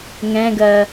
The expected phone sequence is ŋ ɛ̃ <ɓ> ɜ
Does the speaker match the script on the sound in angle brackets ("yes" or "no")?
no